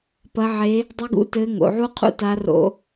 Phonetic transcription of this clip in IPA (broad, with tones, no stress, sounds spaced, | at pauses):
p ɐ˧˥ ʕ e˧˥ | dˤ ɨ˧˥ ɡ ṵ˧˥ t ɘː˧˥ ŋ o̰˩˧ ʕ u˥ qʰ ṵ˥ t a˧˥ r o̰˧